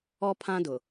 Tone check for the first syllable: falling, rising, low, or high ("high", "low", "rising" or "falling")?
high